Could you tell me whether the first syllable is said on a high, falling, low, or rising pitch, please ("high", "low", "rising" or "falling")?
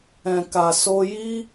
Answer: low